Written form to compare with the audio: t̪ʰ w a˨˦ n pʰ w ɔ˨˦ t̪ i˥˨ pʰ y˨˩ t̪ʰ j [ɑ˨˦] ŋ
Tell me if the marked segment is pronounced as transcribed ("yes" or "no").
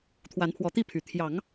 yes